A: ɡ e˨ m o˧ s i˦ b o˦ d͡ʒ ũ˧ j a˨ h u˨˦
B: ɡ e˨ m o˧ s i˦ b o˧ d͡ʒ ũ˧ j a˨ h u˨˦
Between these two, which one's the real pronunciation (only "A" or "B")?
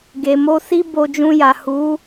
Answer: B